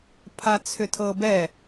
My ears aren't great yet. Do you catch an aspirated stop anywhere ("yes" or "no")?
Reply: yes